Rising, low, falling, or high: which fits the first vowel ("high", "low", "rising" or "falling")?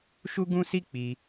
high